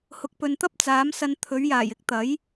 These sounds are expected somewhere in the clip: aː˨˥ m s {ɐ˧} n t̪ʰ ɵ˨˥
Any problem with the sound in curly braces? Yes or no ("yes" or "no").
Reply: no